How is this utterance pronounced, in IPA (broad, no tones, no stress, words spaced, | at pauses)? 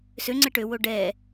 søŋ͡ǀɛ ʈøwo ɖɛ